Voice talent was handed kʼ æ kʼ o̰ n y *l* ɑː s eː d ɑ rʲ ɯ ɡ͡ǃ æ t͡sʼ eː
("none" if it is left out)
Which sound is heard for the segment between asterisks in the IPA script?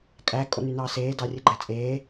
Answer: n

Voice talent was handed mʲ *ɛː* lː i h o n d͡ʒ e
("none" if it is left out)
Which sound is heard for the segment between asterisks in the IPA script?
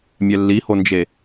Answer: ɛ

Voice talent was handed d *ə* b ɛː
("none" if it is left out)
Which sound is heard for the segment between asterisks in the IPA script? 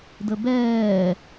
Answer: ə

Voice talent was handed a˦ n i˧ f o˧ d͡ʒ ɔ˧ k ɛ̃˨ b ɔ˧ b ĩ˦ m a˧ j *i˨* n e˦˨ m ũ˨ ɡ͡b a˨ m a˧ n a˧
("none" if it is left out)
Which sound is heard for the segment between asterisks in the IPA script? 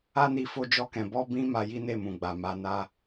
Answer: i˦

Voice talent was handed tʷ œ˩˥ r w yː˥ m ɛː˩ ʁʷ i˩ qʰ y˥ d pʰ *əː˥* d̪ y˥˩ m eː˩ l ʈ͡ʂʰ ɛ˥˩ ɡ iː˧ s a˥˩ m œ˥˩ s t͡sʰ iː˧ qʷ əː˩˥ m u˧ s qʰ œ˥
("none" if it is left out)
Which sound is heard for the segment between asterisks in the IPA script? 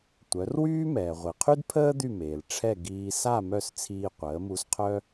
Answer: əː˥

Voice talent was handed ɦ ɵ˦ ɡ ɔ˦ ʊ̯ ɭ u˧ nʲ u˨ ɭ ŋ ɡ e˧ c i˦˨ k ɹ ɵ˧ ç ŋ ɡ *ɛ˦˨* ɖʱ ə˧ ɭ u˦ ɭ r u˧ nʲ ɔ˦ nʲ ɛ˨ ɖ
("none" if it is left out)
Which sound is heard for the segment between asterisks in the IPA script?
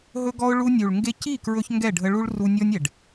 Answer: ɛ˦˨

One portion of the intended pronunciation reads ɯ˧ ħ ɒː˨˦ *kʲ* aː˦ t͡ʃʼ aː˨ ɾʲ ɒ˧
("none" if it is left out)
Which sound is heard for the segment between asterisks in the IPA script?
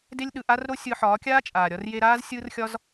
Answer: kʲ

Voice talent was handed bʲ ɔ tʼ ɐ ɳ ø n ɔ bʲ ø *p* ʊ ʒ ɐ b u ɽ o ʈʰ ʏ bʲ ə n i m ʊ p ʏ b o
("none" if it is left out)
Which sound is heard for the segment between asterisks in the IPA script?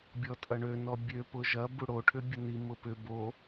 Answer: p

